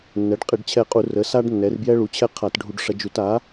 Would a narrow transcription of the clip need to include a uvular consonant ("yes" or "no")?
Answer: yes